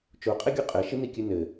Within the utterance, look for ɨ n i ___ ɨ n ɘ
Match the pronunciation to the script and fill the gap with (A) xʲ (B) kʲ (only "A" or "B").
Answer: B